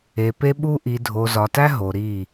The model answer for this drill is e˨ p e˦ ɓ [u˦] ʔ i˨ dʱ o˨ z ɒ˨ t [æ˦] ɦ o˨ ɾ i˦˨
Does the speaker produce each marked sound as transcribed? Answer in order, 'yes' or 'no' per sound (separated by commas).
yes, yes